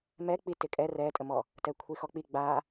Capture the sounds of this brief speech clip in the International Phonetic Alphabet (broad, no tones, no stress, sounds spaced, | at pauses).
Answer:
m ɛ k͡p i t ɪ kʼ ɛ r ɛ tʼ ə m ɔ | t ɛ kʷʰ i x ɔ k͡p i ɡ͡b a